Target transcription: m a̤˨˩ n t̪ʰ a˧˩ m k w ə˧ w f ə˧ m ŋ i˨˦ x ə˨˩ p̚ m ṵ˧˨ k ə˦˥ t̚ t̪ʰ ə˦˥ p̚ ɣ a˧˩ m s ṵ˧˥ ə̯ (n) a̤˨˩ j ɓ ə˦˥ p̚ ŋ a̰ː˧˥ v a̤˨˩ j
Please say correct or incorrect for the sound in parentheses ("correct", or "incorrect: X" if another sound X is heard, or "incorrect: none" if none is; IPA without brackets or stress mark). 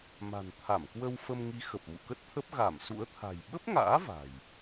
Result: incorrect: t̪ʰ